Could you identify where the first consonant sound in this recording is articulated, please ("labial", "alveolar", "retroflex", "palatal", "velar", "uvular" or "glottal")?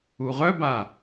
uvular